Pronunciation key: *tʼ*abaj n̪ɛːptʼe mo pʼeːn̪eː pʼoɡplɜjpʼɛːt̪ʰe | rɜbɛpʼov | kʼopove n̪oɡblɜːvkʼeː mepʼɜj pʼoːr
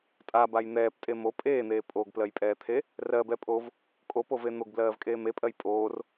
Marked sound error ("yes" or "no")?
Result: no